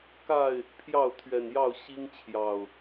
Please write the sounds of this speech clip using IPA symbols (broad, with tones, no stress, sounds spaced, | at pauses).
k a˥˨ ɪ̯ | pʰ j ɑ˥˨ ʊ̯ t̪ʰ ɥ ɛ˨˩ n j ɑ˥˨ ʊ̯ ɕ i˦ ŋ t͡ɕʰ j ɑ˨˩ ʊ̯